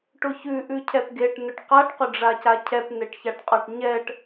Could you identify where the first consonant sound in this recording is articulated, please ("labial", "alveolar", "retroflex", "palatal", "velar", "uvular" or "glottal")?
retroflex